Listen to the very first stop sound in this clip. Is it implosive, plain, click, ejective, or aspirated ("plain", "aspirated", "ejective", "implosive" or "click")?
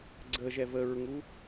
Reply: click